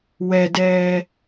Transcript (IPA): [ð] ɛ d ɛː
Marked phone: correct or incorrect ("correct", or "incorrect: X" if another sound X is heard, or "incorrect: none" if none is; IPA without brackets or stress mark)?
incorrect: w